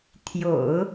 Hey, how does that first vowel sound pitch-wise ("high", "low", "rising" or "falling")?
low